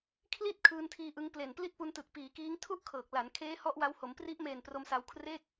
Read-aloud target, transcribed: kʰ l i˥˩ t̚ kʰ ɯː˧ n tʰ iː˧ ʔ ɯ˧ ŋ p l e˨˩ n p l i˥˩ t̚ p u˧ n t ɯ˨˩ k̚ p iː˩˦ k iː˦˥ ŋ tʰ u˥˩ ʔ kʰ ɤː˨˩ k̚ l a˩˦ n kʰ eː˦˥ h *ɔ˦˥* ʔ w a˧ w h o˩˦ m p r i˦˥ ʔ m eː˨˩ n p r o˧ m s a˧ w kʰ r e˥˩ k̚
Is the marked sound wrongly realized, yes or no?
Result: no